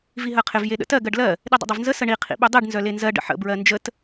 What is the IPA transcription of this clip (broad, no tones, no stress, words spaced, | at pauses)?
viɦɜqʰɪv jeɗə̰tɜ ɡɜɖlɜ | ɗidˤə̰dˤœvnzə səɳi qʰḭɓœdˤiɖ nzœlenzɜ ɖə̰ħə̰ bɹɜnd͡ʒət